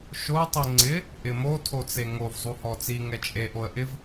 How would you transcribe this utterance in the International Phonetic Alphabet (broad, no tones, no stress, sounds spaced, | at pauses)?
ʃ o tˤ i ŋ͡ǀ ɪ | ʔ ɪ m o tʰ o t͡s e ŋ o v zˤ u h ɔ t͡s i ŋ ɛ t͡ʃʼ e ʔ o ə̯ ʔ ɪ v